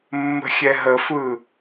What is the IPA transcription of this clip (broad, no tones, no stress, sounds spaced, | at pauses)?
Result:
mː ə̤ xʲ ɛ ɦ ə f ɯ